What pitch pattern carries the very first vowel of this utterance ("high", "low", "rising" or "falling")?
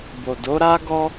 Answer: low